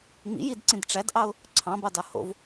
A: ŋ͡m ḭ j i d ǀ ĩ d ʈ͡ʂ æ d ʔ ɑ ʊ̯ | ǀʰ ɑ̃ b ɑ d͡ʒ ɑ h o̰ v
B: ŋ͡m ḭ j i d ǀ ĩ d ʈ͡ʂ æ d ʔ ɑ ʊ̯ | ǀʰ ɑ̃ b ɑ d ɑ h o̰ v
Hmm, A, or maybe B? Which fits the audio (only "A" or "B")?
B